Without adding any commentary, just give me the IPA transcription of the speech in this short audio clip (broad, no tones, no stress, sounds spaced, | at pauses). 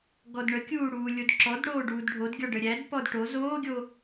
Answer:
ɡ ɔ d ɳ ə kʲ uː ɽ uː lʲ o d ǁ ɔ d ɽ oː ɖ uː d ɖʱ o d ɡʲ ɔ ɖ ə ɾʲ æ d p ɔ d ʈ o z oː ɡʲ o